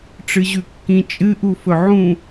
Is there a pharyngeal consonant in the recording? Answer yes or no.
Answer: yes